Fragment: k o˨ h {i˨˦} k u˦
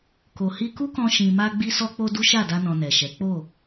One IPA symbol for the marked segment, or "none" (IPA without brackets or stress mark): i˧